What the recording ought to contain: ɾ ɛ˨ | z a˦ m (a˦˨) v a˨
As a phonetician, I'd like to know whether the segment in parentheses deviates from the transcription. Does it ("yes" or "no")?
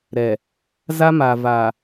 yes